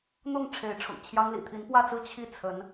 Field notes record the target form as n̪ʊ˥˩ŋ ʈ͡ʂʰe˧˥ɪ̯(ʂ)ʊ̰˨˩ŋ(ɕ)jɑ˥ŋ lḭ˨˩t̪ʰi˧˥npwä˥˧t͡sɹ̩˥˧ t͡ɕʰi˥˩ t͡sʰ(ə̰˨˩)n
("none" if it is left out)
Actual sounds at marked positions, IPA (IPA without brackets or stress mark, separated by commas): ʈ͡ʂʰ, t͡ɕʰ, ə˧˥